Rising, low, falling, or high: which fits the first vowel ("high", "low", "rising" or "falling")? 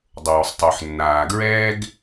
low